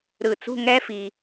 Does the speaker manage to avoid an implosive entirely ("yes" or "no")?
yes